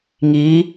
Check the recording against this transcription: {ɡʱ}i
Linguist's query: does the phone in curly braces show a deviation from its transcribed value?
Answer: yes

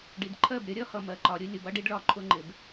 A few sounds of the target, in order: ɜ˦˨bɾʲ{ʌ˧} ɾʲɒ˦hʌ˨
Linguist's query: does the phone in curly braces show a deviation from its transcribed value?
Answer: no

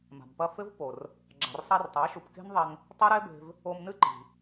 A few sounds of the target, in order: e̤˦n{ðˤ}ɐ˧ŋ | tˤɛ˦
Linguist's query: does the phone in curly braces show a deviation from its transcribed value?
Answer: no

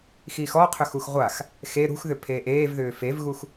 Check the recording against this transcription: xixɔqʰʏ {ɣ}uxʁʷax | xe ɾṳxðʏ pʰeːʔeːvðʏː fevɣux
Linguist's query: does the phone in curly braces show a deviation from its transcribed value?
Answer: yes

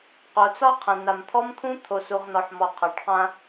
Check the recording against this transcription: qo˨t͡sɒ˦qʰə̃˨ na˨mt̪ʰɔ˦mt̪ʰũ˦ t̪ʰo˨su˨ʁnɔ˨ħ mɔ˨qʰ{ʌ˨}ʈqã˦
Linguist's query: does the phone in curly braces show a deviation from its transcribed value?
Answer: yes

